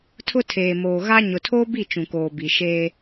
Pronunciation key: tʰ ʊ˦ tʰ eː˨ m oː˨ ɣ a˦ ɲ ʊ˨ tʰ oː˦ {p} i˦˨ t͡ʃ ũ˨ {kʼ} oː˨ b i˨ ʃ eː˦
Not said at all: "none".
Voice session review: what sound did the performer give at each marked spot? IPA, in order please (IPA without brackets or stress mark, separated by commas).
b, k